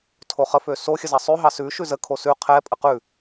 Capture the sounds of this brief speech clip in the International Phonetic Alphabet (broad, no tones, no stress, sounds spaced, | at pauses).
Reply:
tʰ o χ ə f ø s o xʲ ə z ɑ sˤ ʉ ɦ ɑ s ʉ ʃ ʉ z ə kʰ o s ʉ qʰ ɛ pʼ ə q ʉ